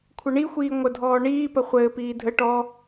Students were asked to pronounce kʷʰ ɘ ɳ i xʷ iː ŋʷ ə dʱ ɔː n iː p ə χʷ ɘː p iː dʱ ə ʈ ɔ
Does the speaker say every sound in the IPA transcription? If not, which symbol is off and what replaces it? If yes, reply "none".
n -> ɳ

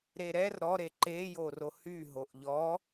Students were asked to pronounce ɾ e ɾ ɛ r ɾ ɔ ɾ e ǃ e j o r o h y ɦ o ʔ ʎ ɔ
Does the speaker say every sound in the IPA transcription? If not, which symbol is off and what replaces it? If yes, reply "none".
none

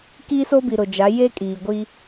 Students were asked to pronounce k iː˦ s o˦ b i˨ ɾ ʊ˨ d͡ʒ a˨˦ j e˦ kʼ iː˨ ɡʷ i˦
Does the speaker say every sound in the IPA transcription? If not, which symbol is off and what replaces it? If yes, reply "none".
none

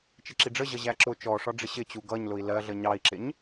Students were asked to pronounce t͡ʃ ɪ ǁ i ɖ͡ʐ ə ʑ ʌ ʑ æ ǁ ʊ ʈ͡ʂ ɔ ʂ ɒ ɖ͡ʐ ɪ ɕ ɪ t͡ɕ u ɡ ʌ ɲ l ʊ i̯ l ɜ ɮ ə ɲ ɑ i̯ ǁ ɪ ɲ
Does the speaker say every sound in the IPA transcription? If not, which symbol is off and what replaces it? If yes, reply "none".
ʈ͡ʂ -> t͡ʃ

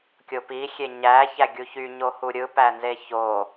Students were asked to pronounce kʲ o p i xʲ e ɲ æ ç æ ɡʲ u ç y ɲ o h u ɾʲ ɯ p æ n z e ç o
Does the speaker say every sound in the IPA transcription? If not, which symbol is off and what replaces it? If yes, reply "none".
none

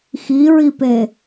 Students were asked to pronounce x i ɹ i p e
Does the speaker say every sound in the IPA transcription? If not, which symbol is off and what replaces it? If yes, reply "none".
none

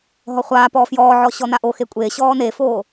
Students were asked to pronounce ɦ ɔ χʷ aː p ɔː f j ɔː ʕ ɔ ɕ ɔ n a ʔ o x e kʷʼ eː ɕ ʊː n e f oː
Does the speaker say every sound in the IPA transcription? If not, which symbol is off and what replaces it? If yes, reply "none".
ʊː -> ɔː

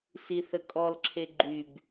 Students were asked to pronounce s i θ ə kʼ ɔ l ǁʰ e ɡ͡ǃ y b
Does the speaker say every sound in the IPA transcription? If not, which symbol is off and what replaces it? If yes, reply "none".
none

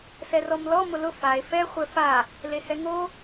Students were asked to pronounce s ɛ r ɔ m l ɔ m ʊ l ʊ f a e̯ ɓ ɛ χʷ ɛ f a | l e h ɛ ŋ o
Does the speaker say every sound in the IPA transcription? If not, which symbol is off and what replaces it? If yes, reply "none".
ɓ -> f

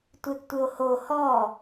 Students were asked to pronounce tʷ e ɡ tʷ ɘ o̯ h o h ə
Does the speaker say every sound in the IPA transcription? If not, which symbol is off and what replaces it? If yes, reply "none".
ə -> ɔ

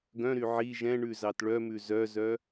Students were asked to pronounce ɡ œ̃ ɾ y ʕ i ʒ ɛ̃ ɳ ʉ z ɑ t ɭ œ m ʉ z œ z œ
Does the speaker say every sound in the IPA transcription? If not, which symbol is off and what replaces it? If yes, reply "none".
none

